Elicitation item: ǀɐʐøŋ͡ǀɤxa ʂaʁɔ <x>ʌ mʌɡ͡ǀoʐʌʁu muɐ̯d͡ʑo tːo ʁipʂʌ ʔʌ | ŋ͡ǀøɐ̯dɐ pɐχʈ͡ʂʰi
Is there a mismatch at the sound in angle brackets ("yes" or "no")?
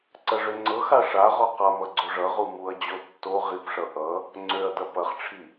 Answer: yes